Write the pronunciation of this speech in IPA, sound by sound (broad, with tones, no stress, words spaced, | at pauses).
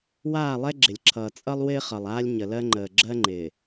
waː˦˨lˠɛ˦ ɡ͡ǁɪ˨lʲǁʰʌː˨ t͡sʼʌ˦lˠ wɪː˦χʌ˨lˠ aː˦lʲ ɲə˨lɜ˦ŋ͡ǃəː˨ ɡ͡ǁɜ˦ŋ͡ǃɪː˨